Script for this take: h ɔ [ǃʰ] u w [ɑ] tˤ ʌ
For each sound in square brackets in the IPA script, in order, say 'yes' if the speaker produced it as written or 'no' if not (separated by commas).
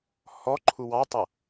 yes, yes